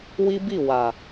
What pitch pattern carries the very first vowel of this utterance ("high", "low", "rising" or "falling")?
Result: high